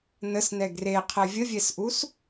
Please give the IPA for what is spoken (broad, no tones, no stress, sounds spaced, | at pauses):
n ə s n ɛ ɡ r e qʰ ɛ vʲ ə vʲ ɛ s ʔ u s